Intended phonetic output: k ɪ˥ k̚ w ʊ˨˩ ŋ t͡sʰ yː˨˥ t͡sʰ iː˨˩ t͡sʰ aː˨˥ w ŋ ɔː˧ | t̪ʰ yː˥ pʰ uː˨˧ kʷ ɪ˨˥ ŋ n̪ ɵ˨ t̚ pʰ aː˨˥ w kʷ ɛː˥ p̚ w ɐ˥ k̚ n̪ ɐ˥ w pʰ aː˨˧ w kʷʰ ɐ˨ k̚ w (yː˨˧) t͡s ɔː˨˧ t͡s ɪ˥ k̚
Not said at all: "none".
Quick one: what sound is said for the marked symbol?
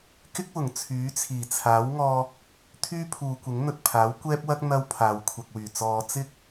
yː˨˩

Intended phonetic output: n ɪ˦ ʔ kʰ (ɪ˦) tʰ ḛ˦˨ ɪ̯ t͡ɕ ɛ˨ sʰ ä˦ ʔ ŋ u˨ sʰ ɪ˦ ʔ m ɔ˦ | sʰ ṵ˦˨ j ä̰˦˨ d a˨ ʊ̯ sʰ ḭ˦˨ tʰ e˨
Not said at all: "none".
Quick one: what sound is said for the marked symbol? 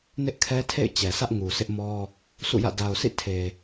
ɛ˦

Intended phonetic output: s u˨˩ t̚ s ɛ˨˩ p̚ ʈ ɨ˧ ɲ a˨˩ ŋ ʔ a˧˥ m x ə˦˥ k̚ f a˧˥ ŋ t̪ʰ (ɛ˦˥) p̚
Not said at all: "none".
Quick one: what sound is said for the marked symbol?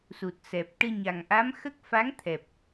ɛ˨˩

